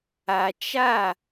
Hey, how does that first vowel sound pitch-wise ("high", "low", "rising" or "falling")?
low